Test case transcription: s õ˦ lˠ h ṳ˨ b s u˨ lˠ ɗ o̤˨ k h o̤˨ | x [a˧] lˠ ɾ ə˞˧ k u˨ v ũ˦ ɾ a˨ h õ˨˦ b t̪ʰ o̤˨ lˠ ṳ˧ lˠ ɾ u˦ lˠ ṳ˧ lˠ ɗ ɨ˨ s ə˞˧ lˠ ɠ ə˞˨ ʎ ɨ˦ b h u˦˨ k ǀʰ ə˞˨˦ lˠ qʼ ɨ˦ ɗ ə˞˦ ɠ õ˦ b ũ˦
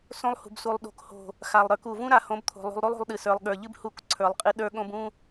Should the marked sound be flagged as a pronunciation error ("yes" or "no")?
yes